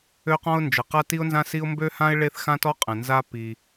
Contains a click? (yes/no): no